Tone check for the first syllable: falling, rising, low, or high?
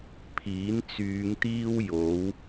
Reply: rising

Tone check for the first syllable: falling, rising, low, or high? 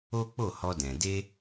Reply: high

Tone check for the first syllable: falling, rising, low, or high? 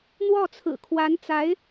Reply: falling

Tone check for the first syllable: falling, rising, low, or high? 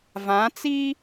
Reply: rising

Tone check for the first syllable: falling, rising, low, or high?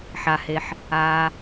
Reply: low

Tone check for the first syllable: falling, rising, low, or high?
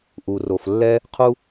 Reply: low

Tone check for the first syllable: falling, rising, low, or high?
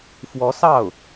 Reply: rising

